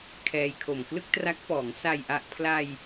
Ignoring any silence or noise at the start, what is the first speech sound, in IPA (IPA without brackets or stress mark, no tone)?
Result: kʰ